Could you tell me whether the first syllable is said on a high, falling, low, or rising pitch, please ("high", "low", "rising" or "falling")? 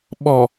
low